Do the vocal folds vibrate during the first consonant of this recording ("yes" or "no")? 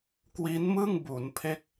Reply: no